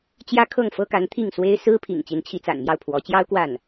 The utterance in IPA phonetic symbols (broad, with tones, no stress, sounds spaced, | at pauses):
t͡ɕ j ä˥ kʰ ɤ˥˩ ŋ f ɤ˥ k a˧˥ n t̪ʰ i˥˩ ŋ s w e˥ ɪ̯ s ɹ̩˥ pʰ ḭ˨˩ ŋ t͡ɕ i˧˥ n t͡ɕʰ i˧˥ t͡s a̰˨˩ n m j ɑ˥˩ ʊ̯ pʰ w ɔ˧˥ t͡ɕ j ɑ˥ ʊ̯ k w a˥˩ n